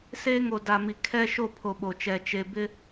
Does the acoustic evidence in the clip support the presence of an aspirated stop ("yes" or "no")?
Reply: yes